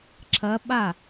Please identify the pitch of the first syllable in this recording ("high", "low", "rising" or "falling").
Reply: rising